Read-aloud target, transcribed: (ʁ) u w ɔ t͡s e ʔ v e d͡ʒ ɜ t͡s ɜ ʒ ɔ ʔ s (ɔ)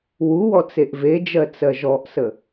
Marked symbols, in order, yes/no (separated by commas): no, no